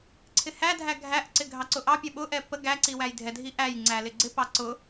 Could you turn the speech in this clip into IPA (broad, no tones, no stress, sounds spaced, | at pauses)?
ǀʰ ɪ h æ dʱ æ ɡʱ æ ʔ ǀ ɪ ɡʱ ɑ ǀ ʊ ʔ ɑ pʲ ɛ ɓ ʊ ʔ ɛ p ə ɡ æ ǀ i w æ j dʱ ɛ dʱ i ʔ æ j ŋ͡ǀ æ l ɪ ɡ͡ǀ ɪ p ɑ ǀ ʊ